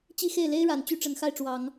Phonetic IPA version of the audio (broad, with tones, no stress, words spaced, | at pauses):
t͡ɕi˥˧xe˥˩ɪ̯le˥ɪ̯ɻa˨˩n t͡ɕy˥ʈ͡ʂə˨˩nxa˥˩ɪ̯ʈ͡ʂwɑ˨˩˦ŋ